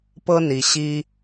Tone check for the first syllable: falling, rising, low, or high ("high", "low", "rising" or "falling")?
high